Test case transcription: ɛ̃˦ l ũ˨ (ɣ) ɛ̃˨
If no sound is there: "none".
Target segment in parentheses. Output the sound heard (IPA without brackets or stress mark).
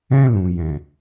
j